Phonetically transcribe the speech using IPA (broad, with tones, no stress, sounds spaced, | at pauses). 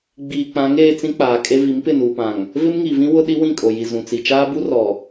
ɡ͡b iː˨ k͡p ã˨˦ ŋ eː˦ t͡s ĩ˦ k͡p aː˨ kʼ e˦ v i˨˦ m p ɪ˦˨ n uː˨ p ã˨ ŋ | v ɪ˦ m ŋ i˨ v ĩ˦ w ʊ˦ ɗ i˦ w ĩ˦˨ kʼ o˨ j i˨ z ũ˨ t͡s i˨ t͡ʃ aː˦ b u˦ r ɔ˨